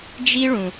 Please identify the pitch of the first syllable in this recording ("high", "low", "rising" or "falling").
high